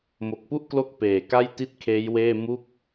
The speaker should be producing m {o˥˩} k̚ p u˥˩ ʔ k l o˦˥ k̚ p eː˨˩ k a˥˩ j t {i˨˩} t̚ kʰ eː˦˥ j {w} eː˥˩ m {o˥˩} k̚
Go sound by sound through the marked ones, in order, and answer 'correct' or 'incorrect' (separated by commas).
incorrect, incorrect, correct, incorrect